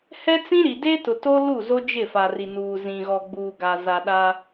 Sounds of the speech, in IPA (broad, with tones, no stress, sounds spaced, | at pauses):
h ɛ˦ t͡s ĩ˦ ɾ i˨ d e˦ t ʊ˨ t o˦ l u˦˨ z o˦ d͡ʒ ɪ˦˨ f a˨ r i˨ n uː˨ z ĩ˨ ɣ ɔ˨ ɡ͡b uː˨ ɡ a˨ z a˨ ɗ a˦